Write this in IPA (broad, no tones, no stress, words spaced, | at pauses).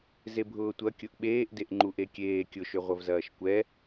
zebʱʊːtʷɐ kʲʊʔɓeːʔdeʔ ŋ͡ǃuʔekʲeː kʲʊʃøʁʷɐvzɐːʃ kʷɛ